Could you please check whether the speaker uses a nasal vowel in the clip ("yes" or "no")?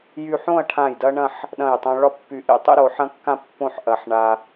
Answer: yes